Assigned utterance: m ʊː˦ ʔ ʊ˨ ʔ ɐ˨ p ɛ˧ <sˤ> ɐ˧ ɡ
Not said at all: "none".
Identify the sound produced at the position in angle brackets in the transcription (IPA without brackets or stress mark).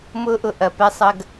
sˤ